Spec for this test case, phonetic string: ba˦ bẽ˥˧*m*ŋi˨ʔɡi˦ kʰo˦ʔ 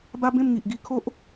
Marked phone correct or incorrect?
correct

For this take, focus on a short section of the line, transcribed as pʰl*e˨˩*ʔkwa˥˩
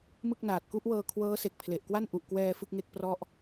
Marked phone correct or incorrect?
correct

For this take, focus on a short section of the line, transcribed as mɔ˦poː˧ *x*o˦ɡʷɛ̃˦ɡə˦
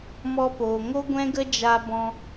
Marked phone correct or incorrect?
incorrect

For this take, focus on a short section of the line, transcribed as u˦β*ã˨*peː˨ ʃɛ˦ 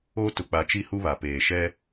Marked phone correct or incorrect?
incorrect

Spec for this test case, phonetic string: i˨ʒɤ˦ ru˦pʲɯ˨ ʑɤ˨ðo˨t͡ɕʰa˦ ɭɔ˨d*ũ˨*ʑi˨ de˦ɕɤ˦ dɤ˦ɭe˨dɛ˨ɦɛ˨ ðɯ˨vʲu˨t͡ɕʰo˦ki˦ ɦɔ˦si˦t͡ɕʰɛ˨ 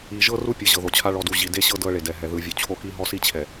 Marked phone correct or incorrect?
incorrect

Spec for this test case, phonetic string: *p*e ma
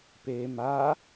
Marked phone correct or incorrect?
correct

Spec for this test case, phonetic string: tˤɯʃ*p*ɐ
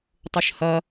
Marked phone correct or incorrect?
incorrect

